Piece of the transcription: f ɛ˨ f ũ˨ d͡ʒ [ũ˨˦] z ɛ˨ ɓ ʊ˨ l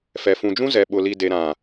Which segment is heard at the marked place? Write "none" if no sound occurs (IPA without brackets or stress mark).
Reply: ũ˦